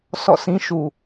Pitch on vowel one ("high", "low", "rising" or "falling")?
falling